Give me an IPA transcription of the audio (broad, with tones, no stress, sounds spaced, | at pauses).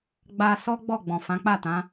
ɡ͡b a˧ s ɔ˦ ɡ͡b ɔ˦˨ ɡ͡b ɔ̃˨ f ã˨˦ k͡p a˦˨ t ã˨˦